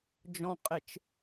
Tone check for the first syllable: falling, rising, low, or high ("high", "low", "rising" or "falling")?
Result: low